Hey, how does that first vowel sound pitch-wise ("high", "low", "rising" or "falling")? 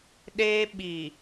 high